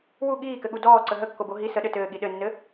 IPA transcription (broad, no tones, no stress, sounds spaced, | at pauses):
w u ɠ iː k ɘ ɠ u d ɔː ǀ ə ɦ ə kː o b o ɦ i s ə ɗ ɘ t ɘː ɠ i ɗ ɘ nː ɘ